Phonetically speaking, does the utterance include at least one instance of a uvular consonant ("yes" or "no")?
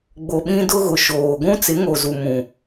no